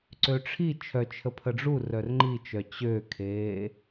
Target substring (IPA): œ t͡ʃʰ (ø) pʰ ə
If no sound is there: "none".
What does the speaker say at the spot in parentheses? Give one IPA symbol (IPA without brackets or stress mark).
ə